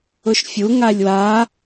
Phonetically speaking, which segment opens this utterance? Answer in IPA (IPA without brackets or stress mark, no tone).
ʊ